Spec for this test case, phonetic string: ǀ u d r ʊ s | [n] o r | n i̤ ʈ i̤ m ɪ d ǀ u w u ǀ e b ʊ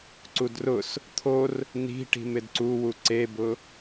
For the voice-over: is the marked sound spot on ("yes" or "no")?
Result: no